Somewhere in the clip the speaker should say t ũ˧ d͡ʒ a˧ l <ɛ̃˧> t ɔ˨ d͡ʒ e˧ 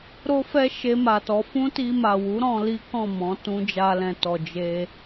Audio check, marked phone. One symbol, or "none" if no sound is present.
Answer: ɛ̃˨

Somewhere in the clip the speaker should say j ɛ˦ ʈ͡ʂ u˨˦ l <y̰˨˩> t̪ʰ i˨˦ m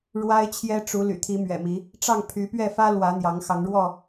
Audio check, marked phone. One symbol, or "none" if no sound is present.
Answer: y̰˨˩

